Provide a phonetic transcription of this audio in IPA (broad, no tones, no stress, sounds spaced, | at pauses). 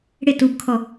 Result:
ɽ ɪ t u b kʰ ɔ